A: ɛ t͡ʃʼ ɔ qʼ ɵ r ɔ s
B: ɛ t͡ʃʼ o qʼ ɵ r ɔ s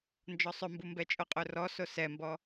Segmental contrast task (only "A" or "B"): B